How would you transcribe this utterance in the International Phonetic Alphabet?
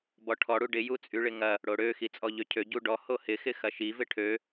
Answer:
b ɔ ʈʰ ɔ ɽ u ɖ ɪ j u t͡sʼ y ɭ ɪ ŋ ɐ | ɽ o ɽ ø x i t͡sʼ ɔ ʎ ø cʰ ø ɟ u ɖ ɔ h o h ɪ x ɪ x ɐ ʃ i v ɪ ʈʰ ø

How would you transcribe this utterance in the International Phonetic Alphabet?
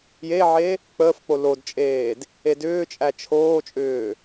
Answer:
j e ʕ e | k͡p əː f k͡p o l o d t͡ʃʼ eː d | e d ʏː t͡ʃʼ æ t͡ʃʰ oː t͡ʃʼ ʏː

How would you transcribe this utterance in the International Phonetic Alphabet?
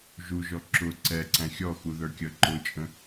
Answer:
ʒ u ʒ ɔ ǁ ʊ ǀ ɛ ǀ æ̃ xʲ ɔ x u ð ə˞ kʲ ʌ ǃ ʊ t͡ʃʼ ə̃

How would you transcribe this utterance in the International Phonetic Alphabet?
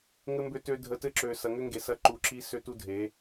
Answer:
ŋ ɘ˧ m b ø˧ t ø˧ dʱ ə˨˦ t ɘ˧ ǁ ø˨ s ɐ˨ ŋ ʏ˦ ŋ ɡ e˨ s ɐ˦ ǃ u˧ ǁ i˦ s ø˦ t u˦ dʱ e˨˦

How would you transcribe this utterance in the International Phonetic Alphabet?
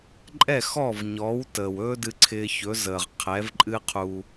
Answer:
ǃʼ ɛ˥˩ x ɔ˥˩ v ɲ ɔ˩˥ w t əː˩ w ɵː˥ d ɨ˧ ǀʰ ɪː˧ ç ɵ˩˥ z əː˩ ʁ qʰ ɛ˩˥ v ǃʼ ɨ˥ qʰ u˧

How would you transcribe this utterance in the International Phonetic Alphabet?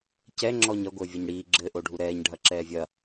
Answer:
c ɛ ŋ͡ǁ ɔː ɲ ɐ ɡʷ ɘː vʲ o ɲ ɽ iː ɡ͡ǁ ɘː ʔ o ɖʱ u ɾ ɛː ɲ ɖʱ ɐ ǁ ɛː vʲ ɐ

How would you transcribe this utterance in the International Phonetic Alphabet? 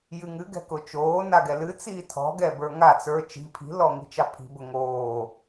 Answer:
j ɨ ŋ ɨ ɡ ɛ̤ k ʊ t͡ʃ oː n a ɡ ɛ l ɨ t͡s iː tʰ ɔ̤ ɡ ɛ b ə˞ ŋ a t͡s ə˞ t͡ʃ i̤ pʰ i̤ l ɔ ŋ i̤ t͡ʃ ɑ pʰ i̤ b ʊ ŋ oː

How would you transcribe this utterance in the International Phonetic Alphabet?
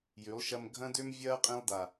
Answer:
j y˨˦ lˠ ʃ ɐ˦ m ɡʱ ɐ̃˦ d ø˦ m vʲ ɐː˦ qʼ ĩ˧ lˠ d a˨

